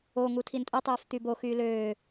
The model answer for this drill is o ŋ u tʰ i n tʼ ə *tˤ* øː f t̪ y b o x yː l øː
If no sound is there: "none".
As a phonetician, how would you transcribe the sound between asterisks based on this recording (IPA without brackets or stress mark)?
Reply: tˤ